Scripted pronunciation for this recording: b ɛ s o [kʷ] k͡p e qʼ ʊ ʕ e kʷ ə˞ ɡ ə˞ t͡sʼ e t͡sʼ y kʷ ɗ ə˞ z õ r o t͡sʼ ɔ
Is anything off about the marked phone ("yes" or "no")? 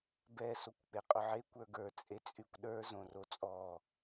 no